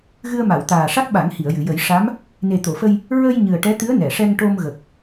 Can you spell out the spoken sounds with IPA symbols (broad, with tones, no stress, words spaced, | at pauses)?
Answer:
ɣɨ˧ə̯ma˨˩˨w t̪aː˨˩ʂa˦˥k̚ɓa˨˩˦ŋ hi˨˩˨ə̯jɨ˨˩˨jə˨˩˦j ʂa˧˥m | ne˨˩t̪o˨˩˨fə˧j | ɹə˧j ɲɨ˨˩ə̯ʈɛ˧˥t̪ɨ˧˥ə̯ nɛ˨˩˨ ʂɛ˧ŋʈo˧mɣə˨˩k̚